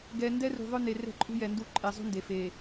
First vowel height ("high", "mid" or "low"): mid